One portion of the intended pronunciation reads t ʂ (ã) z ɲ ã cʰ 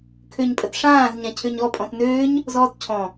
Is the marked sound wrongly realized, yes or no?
yes